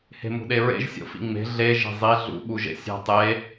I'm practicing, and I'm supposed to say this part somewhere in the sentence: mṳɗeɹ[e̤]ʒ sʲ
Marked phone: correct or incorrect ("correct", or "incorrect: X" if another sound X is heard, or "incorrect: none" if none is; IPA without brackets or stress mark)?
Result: incorrect: ḛ